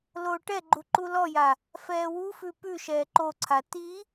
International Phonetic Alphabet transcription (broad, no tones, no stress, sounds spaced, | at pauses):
l oː ʈ ɛ ɡ͡ǃ u ǃ u l ɔ j a | f ɛː w u f ʉ p ʉ ʃ ɛː ǃ o ǀʰ a t i